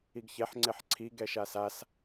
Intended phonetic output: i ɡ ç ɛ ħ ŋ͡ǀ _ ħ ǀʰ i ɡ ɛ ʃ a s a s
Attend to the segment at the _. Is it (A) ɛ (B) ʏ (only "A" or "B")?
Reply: A